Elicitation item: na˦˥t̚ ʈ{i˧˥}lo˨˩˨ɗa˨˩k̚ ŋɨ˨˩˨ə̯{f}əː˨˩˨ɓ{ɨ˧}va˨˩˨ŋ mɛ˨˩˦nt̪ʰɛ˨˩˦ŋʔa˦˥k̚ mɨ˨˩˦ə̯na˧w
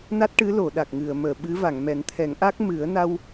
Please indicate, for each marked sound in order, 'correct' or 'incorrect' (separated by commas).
incorrect, incorrect, incorrect